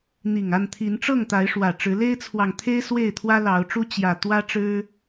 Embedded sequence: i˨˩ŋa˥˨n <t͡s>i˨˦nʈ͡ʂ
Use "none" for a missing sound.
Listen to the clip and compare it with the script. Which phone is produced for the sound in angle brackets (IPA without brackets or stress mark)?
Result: t̪ʰ